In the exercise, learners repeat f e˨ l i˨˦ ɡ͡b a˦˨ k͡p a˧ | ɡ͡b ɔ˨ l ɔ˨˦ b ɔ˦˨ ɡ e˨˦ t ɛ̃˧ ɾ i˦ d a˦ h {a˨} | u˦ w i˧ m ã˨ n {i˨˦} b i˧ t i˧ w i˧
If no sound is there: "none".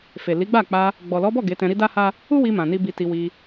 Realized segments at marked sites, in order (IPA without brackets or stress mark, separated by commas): a˦, i˧